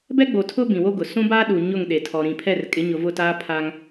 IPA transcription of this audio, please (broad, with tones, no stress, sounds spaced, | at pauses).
b ɛ˦ ɡ͡b o˨ tʰ ʊ˦ b ĩ˨ w o˦ ɡ ʊ˨ s ũ˦ b aː˦ ɗ u˨ ɲ ʊ˦˨ ŋ ɗ e˨ tʰ ɔ˨ ɾ ĩ˨ pʰ ɛ˦˨ r kʼ ɪ˨˦ ɲ ʊ˨ v ʊ˦˨ t aː˦ pʰ a˦ ŋ